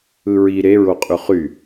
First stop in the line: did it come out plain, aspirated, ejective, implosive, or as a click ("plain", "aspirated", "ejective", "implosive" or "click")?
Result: ejective